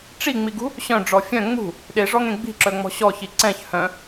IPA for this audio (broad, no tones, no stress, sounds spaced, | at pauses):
ʈ͡ʂ i ŋ͡m i ɡ ṳ | ɕ œ̃ ɖ͡ʐ ɔ fʲ œ̃ ŋ͡m ṳ | ɗ e ʐ ɔ ŋ ẽ ɡ͡b i̤ ǁ œ ŋ͡m ɔ̤ ɕ ɔ ç i ǀ ɛ̃ ç h œ̃